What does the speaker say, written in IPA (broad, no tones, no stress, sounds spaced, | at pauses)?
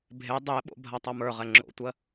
bʱ e dˤ e ɓ o̰ bʱ a tˤ a m ə˞ ʁ ɛ ŋ͡ǁ o̰ tʷ ɜ